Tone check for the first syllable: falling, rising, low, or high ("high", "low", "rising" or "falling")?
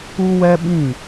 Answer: high